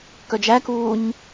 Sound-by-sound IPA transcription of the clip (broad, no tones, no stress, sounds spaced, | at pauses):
k œ d͡ʒ æ k uː ɲ